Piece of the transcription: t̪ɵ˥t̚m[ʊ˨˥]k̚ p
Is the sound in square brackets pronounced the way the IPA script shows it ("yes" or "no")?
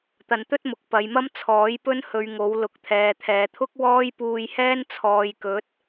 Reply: yes